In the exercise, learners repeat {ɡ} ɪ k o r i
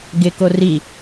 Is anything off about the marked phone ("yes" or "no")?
no